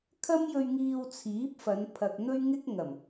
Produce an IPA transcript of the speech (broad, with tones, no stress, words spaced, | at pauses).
kʰɐ˥mjɵ˧ɥ ŋiː˧wt͡sʰiː˨˥p̚fɐ˨˧npʰɐ˨k̚ n̪ɵ˥ɥŋɪ˥k̚ ŋɐ˨˩m